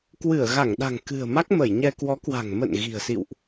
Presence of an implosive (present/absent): present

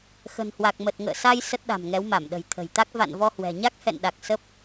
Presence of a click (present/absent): absent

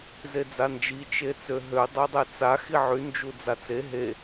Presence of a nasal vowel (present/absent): absent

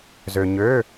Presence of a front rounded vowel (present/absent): present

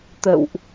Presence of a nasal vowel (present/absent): absent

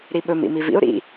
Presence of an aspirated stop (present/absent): absent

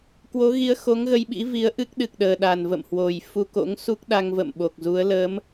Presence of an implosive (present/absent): present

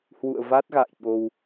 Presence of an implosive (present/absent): present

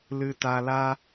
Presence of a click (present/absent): absent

